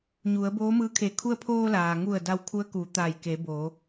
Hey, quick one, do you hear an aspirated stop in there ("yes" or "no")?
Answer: yes